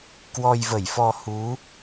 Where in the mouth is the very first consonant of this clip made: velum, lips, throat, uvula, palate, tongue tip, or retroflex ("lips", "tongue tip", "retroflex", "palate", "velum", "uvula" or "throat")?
velum